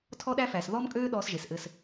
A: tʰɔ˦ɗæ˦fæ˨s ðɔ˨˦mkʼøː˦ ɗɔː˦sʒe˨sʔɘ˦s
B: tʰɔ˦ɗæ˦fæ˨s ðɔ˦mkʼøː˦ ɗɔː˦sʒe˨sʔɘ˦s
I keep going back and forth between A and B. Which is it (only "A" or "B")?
B